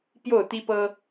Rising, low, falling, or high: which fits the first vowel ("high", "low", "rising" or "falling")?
falling